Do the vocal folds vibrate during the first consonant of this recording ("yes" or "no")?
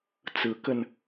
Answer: no